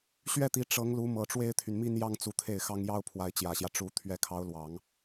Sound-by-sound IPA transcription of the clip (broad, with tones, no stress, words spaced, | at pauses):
ɕɥɛ˥˩t̪i˧˥ ʈ͡ʂɤ˧˥ŋlu˧˥ mɤ˨˩ʈ͡ʂwe˥ɪ̯t̪ʰy˨nmi˥n jɑ˥ŋt͡su˧˥t̪ʰe˥˩ɪ̯xɑ˥ŋ jɑ˥ʊ̯ pʰwa˧˥ɪ̯t͡ɕjä˨˩ɕjä˦ ʈ͡ʂu˧˥ t̪ʰɥɛ˧˥kʰɑ˧˥ʊ̯lwɑ˨˩˦ŋ